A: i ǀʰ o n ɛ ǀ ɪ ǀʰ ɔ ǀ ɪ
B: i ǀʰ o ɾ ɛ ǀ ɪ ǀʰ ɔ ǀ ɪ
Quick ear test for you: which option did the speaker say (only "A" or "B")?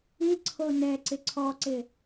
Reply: A